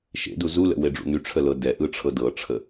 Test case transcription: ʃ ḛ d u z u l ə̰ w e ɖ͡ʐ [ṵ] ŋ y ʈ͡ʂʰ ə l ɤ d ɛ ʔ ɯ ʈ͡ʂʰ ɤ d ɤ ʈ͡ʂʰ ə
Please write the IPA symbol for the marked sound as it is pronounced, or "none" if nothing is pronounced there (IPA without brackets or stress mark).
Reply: ṵ